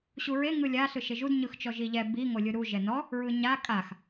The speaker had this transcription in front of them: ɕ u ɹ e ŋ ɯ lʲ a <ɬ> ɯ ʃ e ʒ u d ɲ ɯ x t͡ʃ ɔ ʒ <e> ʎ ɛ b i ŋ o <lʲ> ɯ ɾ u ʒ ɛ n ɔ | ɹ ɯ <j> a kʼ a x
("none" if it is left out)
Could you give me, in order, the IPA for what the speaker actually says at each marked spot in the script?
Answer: ɬ, i, lʲ, ɲ

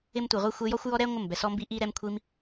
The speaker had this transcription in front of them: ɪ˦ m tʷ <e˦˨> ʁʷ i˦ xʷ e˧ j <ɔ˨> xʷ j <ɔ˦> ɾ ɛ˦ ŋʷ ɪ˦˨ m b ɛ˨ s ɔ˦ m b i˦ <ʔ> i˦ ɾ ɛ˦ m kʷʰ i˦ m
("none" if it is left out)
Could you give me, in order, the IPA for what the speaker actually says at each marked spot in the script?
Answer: e˨, ɔ˦, ɔ˦, ʔ

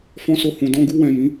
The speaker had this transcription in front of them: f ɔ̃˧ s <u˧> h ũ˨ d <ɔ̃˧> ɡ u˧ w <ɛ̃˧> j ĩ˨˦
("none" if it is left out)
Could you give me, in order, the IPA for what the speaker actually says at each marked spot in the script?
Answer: o˧, ɔ̃˧, ɛ̃˨

